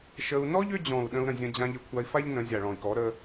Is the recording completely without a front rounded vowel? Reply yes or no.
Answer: no